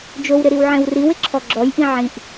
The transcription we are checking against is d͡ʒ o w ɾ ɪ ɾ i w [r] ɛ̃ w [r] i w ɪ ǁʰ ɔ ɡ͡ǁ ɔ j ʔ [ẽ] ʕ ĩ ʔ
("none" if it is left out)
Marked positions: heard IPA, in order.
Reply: ʕ, r, ĩ

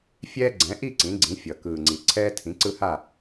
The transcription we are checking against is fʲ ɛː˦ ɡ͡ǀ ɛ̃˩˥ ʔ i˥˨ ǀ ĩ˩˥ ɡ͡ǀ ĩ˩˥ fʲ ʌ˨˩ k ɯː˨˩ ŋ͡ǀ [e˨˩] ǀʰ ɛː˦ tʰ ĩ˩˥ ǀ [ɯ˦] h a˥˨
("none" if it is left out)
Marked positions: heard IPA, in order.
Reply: i˨˩, ɯ˦

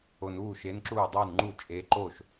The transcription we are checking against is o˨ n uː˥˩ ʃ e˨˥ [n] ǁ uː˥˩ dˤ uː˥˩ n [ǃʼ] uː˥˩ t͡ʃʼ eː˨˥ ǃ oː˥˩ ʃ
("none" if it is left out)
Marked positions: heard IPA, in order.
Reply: n, ŋ͡ǃ

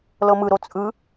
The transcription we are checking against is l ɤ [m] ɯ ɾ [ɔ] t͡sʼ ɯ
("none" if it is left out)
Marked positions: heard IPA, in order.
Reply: m, o

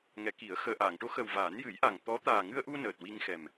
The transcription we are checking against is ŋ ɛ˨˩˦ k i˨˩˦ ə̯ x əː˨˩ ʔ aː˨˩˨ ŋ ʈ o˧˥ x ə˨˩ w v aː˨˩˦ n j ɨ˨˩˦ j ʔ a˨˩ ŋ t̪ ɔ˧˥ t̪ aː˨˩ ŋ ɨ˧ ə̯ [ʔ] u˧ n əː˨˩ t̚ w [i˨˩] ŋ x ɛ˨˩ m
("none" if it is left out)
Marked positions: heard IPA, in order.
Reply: ʔ, i˧

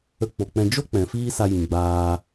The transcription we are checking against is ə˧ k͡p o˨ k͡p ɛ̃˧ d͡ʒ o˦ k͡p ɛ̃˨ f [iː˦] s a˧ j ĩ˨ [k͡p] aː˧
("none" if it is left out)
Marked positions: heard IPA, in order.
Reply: iː˦, ɡ͡b

